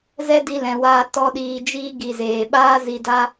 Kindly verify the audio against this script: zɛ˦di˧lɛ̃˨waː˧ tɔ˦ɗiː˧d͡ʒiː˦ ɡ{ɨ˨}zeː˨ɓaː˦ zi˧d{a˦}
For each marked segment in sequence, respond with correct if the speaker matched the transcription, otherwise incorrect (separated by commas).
incorrect, correct